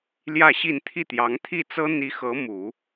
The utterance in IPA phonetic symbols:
l j ä˥˧ ɕ i˥˧ n t̪ʰ i˥˩ t̪ j ɑ˧˥ ŋ t̪ʰ i˥˩ t͡s ɤ˥ n̪ i˧˥ x ɤ˧˥ m u˨˩˦

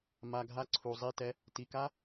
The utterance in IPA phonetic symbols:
m a˨ ɡʱ a˧ ǀʰ u˨ zˤ i˦˨ t ɛ˦ | t i˨ k a˦

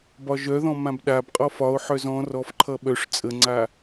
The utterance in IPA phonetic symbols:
b ɒ ʒ œ ð ɔ̃ m ã b ɗ a b qʼ ɔ f ɒ o̯ ħ œ z ɔ̃ r ɔ f ǃʰ ʌ ɓ œ ʂ t͡sʼ ə ŋ͡ǀ a

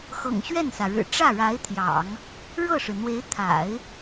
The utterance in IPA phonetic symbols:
x ɤ̰˨˩ ŋ ɕ ɥ ɛ˥˩ n s ä˩ ɻ ɻ̩˨˩ ʈ͡ʂ ä˥˩ ɻ a˧˥ ɪ̯ t̪ʰ j ɑ̰˨˩˦ ŋ | ɻ ɤ˥˩ ʂ ɻ̩˩ n̪ w e˧˥ ɪ̯ t̪ʰ a̰˨˩˦ ɪ̯

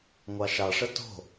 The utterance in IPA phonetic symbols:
ŋʷ ɑ ʃ ɑ ʂ ə t o̤

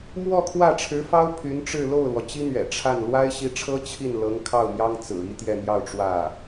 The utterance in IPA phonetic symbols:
m w ɔ˥˧ kʰ w ä˥˩ ʈ͡ʂʰ ɻ̩˧˥ f ɑ˥ ʊ̯ pʰ y˧˥ n ʈ͡ʂ ɻ̩˥˧ l o˥˩ ʊ̯ l w ɔ˩ t͡ɕ i˥ n̪ ɥ ɛ̰˨˩ ʈ͡ʂʰ a˥˩ n l w a˥ ɪ̯ ɕ i˧˥ ʈ͡ʂʰ ɤ˥ t͡ɕʰ i˥˩ n l ɤ˧˥ ŋ kʰ ɑ˥˩ ʊ̯ m j ɑ˥ ŋ t͡s ɹ̩˨˩ i˥ t̪ j ɛ˥˧ n̪ j ɑ˥˧ ʊ̯ ʈ͡ʂ w ä˥˩

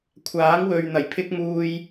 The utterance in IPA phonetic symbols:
kʷʰ aː˨˥ ŋ w ɵ˨ ɥ n̪ ɐ˨˩ j pʰ ɪ˧ k̚ m uː˨ j

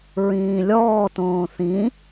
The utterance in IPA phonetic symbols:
ɹ ĩː lʲ ɔː t õː θ ĩ

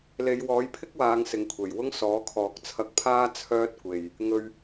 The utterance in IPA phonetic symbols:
l e˨˧ j w ɔː˨˥ j pʰ ɪ˥ k̚ w aː˨˧ ŋ s ɪ˨ ŋ kʷʰ e˨˩ j w ʊ˥ ŋ s ɔː˨˥ kʰ ɔː˨ k̚ t͡sʰ ɐ˧ k̚ pʰ aː˥ t͡sʰ œː˥ t̚ kʷ e˨ j | ŋ ɵ˧ ɥ

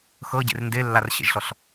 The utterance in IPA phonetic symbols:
x ɤ ɟ ḛ r n d e lː a r ɕ ḛ ʒ ɬ ɔ ɬ

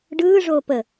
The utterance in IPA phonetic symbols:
ɖ ɯː ʐ oː p ə

